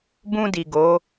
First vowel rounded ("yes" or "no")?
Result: yes